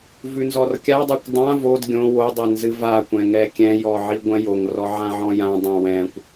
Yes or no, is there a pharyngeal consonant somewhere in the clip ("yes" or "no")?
yes